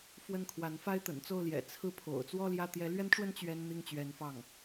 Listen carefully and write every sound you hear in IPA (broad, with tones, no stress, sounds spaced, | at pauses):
f w ə˥˩ n kʰ w a˧˥ n f a˥ ɪ̯ t̪ ə̰˨˩ n t͡s o˥˩ ʊ̯ l j ɛ̰˨˩ t͡sʰ ɹ̩˥˩ pʰ o̰˨˩ ʊ̯ t͡s w ɔ˥ l j ä˥˩ t̪ j ɛ˧˥ l ɥ ɛ˥ n ʈ͡ʂ w ə˥ n t͡ɕ ɥ ɛ˥ n n̪ i˥˩ ŋ t͡ɕ ɥ ɛ˧˥ n f ɑ˥˩ ŋ